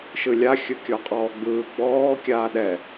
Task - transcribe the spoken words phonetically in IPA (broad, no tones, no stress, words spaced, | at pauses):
ʃɯlʲa xʲɯkʲɔqʼɔːɡ͡bɯː ɡ͡bɔː kʲaːɗɛ